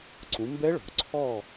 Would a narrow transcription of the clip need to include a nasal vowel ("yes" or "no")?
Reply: yes